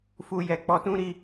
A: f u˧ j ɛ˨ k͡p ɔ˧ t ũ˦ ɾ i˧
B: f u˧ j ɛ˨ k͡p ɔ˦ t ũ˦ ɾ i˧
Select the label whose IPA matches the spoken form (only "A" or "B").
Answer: A